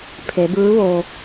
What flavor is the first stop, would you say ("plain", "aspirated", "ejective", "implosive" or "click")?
aspirated